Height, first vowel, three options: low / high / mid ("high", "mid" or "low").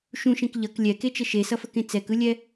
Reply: high